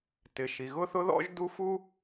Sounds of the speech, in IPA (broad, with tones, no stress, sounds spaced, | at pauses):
t ɪ˩ ʃ i˩ ɣ ʊ˥ θ ʊ˥ ð ɔ̰˥ ʒ d u˥ f u˥